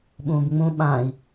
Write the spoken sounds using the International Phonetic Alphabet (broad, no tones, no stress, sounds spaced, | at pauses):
ɓ ũː b ŋ͡m ũ ɓ ã i̯